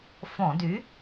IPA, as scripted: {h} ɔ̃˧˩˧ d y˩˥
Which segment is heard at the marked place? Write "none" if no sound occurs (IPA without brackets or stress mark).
f